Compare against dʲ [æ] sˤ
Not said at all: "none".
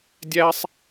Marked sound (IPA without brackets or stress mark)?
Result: æ